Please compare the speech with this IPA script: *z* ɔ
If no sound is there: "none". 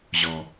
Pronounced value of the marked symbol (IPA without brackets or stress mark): ʑ